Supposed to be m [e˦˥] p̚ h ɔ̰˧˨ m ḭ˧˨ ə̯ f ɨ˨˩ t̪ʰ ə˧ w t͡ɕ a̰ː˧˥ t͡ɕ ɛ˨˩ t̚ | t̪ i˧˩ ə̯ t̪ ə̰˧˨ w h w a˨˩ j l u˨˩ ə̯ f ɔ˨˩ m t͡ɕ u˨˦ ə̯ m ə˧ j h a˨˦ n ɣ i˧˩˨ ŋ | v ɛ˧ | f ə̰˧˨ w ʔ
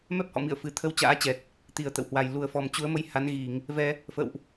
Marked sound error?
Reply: yes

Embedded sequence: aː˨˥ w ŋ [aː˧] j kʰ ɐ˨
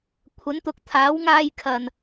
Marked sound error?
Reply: no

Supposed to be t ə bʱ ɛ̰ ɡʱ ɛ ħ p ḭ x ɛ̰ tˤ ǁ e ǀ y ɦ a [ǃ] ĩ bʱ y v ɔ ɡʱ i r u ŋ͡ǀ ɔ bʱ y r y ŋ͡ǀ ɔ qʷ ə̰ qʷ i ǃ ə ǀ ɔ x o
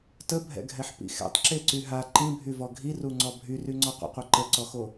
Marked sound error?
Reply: no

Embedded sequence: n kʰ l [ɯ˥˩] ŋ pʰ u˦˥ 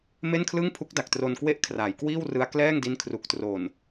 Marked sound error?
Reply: no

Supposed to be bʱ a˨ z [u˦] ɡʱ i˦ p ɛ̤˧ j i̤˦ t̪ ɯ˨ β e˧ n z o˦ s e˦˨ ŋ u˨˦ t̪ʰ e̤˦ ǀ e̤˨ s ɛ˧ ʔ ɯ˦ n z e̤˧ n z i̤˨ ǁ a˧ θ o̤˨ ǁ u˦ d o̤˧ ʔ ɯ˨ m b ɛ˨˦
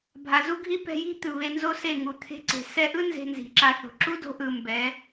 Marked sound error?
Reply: no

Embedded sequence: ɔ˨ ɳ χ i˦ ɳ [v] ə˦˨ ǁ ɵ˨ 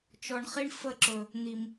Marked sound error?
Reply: yes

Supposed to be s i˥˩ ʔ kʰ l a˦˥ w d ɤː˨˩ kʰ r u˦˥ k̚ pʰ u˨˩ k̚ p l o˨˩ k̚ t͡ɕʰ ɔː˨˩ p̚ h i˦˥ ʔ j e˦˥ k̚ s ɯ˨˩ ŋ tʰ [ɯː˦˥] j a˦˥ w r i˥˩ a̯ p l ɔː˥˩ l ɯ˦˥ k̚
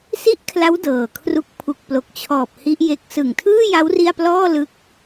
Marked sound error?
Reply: yes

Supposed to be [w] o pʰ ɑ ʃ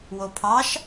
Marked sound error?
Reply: no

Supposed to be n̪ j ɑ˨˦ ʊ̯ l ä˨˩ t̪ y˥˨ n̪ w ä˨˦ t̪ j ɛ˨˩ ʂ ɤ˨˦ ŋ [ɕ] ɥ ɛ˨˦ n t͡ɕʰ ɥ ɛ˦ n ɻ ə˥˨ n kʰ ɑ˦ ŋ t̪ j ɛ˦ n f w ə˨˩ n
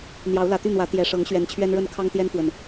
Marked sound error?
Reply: no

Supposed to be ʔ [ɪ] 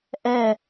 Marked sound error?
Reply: yes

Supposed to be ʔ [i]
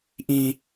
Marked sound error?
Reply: yes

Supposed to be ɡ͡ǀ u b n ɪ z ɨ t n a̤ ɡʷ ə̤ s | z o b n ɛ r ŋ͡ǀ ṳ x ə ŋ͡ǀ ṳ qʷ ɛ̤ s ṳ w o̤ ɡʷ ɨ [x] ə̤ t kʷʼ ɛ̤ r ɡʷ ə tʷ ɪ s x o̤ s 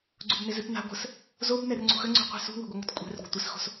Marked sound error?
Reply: yes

